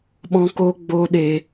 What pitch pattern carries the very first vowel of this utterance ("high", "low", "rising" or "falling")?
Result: high